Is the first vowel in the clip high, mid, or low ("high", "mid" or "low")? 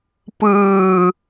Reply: high